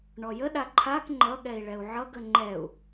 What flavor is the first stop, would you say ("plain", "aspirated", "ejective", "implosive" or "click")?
implosive